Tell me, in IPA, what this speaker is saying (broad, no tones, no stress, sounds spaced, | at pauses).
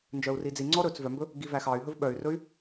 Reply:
n d͡ʒ œ u̯ r i d͡z i ŋ͡ǀ ɔ ɾ ɵ t͡s v œ m b ɵ | ɡ i v æ x ɑ y̯ ɦ ɵ v ɓ œ y̯ r ɵ y̯